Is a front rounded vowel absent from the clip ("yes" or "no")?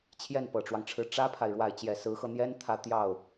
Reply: yes